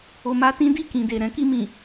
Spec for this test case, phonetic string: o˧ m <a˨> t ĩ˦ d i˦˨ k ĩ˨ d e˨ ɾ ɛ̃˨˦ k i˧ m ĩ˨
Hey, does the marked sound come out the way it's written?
no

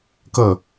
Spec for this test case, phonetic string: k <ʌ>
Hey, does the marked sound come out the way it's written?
yes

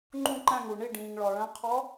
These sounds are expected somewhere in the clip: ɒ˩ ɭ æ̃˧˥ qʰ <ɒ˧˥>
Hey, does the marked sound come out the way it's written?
yes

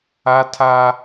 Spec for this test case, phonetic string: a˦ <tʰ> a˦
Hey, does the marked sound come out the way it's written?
yes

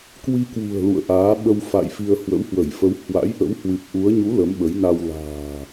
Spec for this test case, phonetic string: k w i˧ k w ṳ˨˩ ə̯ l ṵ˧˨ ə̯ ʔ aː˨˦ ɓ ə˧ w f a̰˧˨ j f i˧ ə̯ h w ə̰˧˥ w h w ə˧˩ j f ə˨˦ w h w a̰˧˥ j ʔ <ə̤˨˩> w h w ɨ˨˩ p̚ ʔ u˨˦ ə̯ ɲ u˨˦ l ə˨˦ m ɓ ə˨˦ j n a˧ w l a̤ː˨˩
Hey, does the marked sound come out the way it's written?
no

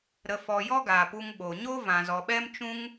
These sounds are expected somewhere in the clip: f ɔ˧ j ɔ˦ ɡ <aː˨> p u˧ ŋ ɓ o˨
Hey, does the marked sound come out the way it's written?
yes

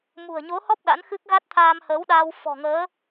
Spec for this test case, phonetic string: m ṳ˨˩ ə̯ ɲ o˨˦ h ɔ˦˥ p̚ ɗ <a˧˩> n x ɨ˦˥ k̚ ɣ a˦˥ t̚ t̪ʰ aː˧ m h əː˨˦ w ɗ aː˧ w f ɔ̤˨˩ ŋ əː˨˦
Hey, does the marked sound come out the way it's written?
no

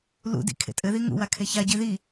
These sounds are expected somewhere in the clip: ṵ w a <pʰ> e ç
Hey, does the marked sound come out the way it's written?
no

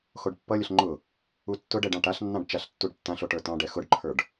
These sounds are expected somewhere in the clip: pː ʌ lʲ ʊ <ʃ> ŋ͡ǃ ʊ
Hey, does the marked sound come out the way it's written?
no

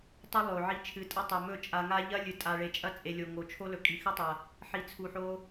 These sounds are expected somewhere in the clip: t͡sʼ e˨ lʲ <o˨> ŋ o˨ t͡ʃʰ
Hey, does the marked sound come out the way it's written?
yes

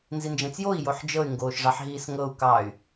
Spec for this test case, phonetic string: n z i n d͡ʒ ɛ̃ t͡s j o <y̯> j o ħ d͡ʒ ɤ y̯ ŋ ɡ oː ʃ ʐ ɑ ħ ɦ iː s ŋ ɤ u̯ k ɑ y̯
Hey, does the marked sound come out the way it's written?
no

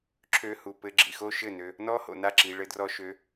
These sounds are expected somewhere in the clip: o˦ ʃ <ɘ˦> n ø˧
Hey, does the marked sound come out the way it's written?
no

